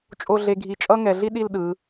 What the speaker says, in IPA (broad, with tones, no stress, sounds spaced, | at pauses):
t͡ʃʼ o˥˧ ɮ e˧ ɡʱ i˧˩ t͡ʃʼ ʌ˥ ŋ ɛ˩˧ ɮ i˥ ɗ i˥˧ l ɗ ɯ˩˧